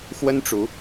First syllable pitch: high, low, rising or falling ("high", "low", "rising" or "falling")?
high